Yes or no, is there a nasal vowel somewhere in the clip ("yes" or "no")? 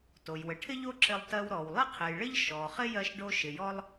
no